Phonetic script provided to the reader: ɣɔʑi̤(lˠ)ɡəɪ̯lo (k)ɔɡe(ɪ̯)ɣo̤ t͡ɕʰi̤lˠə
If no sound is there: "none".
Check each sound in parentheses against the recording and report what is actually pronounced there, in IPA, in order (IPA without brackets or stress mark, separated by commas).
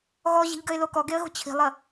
ʎ, k, ə̯